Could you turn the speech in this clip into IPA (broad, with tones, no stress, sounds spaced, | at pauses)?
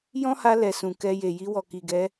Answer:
j ɔ̃˦ h a˧ l ɛ˨ s ũ˨ k ɛ˧ j e˨ j i˧ w ɔ˨ k i˨ ɡ ɛ˨˦